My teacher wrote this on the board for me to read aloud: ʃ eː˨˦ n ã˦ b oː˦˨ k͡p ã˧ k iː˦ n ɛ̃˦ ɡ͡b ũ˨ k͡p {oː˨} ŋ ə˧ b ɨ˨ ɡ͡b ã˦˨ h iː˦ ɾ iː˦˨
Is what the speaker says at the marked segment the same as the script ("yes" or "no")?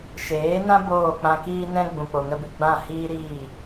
no